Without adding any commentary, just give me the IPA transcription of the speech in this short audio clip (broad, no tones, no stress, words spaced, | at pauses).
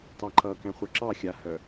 tɑǃʌ kɛ̃χʷœǁɑ xʲa hœ